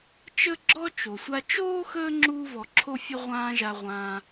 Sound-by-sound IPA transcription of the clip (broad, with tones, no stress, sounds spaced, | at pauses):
t͡ʃ ə˥ ɡ͡ǁ ɔ˥ t͡ʃ o˩ sʷ a˦ t͡ʃ oː˥ x əː˦ ŋ͡ǁ uː˥ v ɔ˨ ǁʰ o˥ fʲ ə˥ ʁʷ ãː˦ ʒ a˨ ʁʷ ãː˨